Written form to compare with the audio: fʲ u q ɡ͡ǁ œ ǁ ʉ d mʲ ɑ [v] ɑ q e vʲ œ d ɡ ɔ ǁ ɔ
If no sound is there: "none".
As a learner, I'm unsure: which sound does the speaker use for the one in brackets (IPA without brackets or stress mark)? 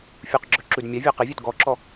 vʲ